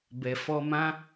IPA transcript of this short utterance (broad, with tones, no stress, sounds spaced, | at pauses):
b ɛ˨ f ɔ˧ m ã˦